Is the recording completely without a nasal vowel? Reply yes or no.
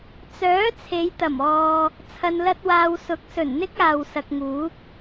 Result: yes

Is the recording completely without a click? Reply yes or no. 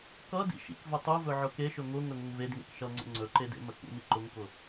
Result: no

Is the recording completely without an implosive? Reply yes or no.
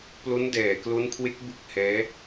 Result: yes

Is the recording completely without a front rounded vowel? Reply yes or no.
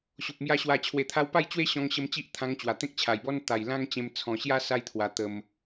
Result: yes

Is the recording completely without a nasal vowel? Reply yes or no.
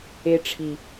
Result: yes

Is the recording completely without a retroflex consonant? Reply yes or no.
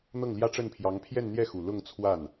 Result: no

